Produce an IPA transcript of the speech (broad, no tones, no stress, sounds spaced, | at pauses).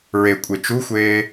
ɹ e kʷʼ e t͡ʃ u xʷ eː